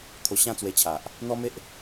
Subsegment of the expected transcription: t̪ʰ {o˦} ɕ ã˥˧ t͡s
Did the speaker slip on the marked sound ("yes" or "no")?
yes